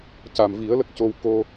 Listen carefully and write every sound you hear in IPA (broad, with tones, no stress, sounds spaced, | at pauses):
c a˨˩ m v i˨˩˦ ə̯ l ə˦˥ k̚ c o˧ w k o˧